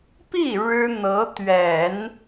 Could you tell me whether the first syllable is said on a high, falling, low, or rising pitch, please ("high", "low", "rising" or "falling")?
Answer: falling